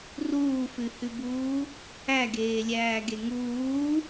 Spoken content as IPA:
r uː f ʉ h ʉ b uː | æ ɡ eː lʲ æː ɡ e ŋ uː

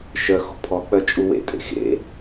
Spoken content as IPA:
ʃ œ x o̤ pʰ ɔ k͡p œ t͡ʃʼ u w ḛ tʼ ḛ x ḛ

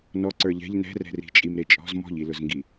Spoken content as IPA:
n ɔ ǀ ə˞ ʎ ɛ̤ ʎ n ɛ̤ r ɛ̤ r i̤ t͡ʃʼ i m ɾ e t͡ʃʼ ɔ̤ z m ɔ̤ ʎ i l ʊ z ŋ ɡ i

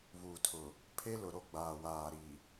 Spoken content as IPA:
β uː˨ tʰ ʊ˨ | pʰ e˦ l ʊ˨ ɾ o˦ ɡ͡b aː˨ w aː˨ ɾ i˨

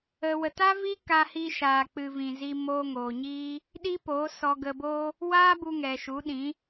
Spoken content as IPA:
ə˨ w ə˨ t a˦ v i˦ k a˧ h i˧ ʃ aː˨ k͡p ɨ˨ v ĩ˨ z i˧ m oː˧ ŋ oː˨ ɲ iː˦ | ɗ i˦ p o˨˦ s ɔ˧ ɡ ə˧ b o˦ | w aː˦ b u˧ ŋ ɛ˨ ʃ u˨˦ ɗ ĩ˨˦

